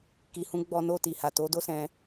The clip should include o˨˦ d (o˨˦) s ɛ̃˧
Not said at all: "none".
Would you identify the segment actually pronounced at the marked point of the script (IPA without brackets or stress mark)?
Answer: o˦